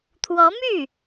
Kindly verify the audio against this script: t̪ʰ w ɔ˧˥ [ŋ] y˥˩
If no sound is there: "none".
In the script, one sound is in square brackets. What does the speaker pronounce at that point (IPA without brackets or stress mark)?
m